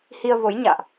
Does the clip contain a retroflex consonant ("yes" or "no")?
no